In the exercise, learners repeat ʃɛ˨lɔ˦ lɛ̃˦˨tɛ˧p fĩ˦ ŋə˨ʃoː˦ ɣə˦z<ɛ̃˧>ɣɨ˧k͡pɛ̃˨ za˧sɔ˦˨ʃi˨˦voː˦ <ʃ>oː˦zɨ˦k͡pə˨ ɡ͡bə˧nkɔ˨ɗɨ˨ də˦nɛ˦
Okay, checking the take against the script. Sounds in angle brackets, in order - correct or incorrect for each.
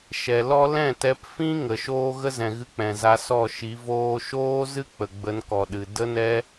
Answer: incorrect: ɛ̃˨, correct

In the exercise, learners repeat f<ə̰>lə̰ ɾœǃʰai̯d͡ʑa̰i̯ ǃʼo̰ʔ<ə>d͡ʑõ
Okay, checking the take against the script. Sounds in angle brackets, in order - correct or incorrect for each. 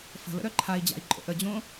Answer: incorrect: ə̤, correct

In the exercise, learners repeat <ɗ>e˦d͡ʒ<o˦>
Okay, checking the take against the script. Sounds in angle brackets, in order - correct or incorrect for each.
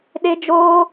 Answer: correct, incorrect: oː˦

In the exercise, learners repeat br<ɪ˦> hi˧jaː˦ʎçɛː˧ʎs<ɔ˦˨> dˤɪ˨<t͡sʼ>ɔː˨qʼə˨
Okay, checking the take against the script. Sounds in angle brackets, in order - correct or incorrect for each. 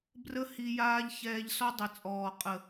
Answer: incorrect: ə˦, incorrect: ɔ˦, correct

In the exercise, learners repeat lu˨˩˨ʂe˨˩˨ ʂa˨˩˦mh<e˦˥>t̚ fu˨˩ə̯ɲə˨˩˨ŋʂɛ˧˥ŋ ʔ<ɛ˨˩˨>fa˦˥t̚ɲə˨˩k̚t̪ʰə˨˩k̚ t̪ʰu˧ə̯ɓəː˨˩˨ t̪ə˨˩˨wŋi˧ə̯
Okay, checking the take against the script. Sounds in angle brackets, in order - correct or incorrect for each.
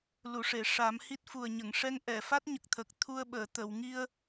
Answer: incorrect: i˦˥, correct

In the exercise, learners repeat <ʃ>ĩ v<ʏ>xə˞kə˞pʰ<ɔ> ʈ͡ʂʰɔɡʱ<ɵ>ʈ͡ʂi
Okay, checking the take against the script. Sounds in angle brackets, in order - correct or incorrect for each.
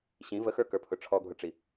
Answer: incorrect: ɕ, incorrect: ə, incorrect: ʊ, incorrect: ʊ

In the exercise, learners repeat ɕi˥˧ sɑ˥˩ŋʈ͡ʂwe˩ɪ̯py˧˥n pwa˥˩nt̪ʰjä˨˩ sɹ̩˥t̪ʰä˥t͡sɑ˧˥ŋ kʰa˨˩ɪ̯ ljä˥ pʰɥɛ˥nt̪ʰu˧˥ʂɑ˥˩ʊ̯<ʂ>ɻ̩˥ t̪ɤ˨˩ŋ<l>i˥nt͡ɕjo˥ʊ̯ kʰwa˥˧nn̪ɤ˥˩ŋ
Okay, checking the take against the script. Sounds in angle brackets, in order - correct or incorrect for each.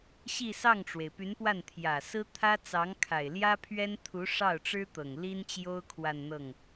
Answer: incorrect: ʈ͡ʂ, correct

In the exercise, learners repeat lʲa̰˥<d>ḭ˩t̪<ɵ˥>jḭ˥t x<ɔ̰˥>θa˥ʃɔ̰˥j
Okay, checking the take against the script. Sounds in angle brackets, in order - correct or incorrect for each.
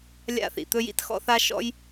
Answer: incorrect: θ, correct, correct

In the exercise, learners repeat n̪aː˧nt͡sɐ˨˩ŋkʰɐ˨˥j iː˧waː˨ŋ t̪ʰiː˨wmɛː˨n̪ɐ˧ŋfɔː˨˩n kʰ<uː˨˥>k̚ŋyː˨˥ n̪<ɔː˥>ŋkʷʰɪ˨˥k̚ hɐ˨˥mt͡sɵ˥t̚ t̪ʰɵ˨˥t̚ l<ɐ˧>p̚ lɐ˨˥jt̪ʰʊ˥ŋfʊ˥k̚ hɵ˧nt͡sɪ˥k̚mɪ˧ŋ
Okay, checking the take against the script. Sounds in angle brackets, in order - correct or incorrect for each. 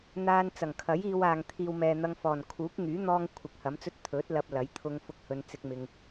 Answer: correct, correct, correct

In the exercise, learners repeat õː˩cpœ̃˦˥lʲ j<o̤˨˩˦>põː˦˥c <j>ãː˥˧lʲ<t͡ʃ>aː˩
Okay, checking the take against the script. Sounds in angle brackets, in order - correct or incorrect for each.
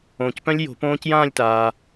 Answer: correct, correct, incorrect: t

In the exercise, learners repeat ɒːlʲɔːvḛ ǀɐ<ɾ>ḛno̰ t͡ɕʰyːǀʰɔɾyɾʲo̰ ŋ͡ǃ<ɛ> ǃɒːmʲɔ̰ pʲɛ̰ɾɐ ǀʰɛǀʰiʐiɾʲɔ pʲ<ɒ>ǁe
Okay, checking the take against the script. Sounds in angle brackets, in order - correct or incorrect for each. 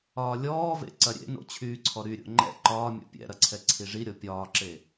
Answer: incorrect: ɾʲ, incorrect: ɛ̰, incorrect: ɒː

